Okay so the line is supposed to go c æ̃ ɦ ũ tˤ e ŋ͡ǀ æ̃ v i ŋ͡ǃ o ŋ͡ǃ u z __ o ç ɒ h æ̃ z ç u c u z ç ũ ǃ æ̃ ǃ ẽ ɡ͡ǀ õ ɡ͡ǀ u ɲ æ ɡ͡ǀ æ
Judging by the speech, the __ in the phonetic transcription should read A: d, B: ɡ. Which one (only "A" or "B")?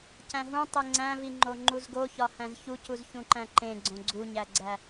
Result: B